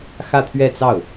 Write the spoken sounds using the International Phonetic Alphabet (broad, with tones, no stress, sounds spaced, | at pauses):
x ä˥˧ t̪ʰ ɥ ɛ˥˧ t͡s ɑ˥˩ ʊ̯